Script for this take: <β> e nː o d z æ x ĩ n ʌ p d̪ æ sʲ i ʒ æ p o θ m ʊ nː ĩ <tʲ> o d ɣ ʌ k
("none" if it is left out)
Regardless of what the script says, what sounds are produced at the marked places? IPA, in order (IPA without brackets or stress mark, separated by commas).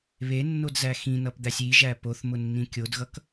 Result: β, kʲ